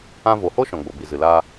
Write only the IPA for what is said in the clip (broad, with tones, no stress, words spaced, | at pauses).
ã˧vo˨ho˦ ʃɔ̃˨ɡ͡bo˨bi˨ zɨ˨laː˧